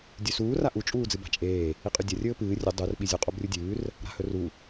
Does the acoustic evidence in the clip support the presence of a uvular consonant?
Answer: yes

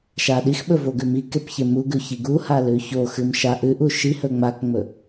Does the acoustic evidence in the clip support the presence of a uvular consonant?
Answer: no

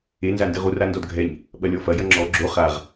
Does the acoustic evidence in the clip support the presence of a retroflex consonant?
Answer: no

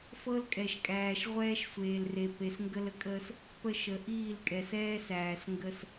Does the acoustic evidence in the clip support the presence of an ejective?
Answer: yes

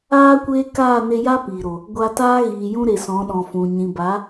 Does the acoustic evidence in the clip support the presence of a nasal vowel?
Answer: yes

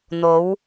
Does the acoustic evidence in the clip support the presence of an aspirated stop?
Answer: no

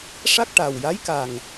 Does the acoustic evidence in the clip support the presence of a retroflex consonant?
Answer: yes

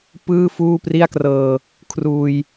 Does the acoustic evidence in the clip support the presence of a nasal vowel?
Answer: no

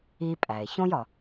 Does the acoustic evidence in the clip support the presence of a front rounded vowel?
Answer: no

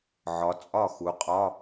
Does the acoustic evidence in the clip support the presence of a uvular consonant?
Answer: yes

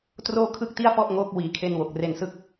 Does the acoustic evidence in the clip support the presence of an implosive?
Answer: no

